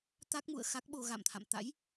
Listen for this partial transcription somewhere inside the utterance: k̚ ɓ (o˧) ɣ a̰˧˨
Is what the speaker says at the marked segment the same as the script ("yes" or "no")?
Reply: yes